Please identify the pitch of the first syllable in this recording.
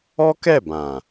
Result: high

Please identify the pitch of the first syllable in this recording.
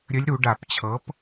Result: rising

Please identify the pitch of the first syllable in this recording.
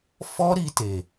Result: high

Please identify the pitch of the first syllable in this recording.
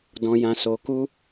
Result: low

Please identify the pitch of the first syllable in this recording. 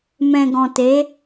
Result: low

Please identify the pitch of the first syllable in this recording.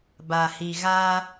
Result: low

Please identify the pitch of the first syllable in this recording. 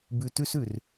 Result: low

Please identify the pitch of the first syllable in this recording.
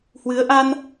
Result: rising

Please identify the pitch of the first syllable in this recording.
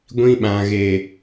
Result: high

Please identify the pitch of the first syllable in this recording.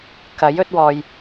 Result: rising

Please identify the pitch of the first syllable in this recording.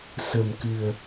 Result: low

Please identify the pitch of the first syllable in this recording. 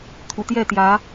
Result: low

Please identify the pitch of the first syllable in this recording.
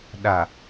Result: low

